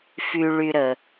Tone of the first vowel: low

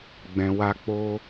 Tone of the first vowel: low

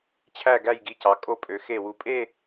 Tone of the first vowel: falling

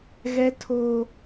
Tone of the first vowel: high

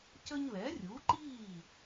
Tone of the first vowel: high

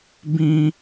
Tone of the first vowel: high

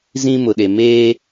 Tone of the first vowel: high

